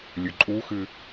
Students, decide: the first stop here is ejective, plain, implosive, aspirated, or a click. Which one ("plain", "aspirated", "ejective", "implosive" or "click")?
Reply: click